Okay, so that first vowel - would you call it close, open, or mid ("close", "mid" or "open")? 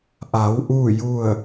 open